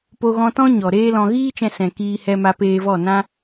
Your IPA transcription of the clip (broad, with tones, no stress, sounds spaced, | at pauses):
p o˧ ɣ ɔ̃˧ t ɔ̃˦ ɲ ɔ˨ ɾ eː˦ l ɔ̃˧ ɣ iː˦ t͡ʃ ɛ̃˧ s ɛ̃˨ k iː˧ h ɛ˧ m a˧ p eː˧ v ɔ˦˨ n ã˦